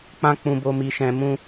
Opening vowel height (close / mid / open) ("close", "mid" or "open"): open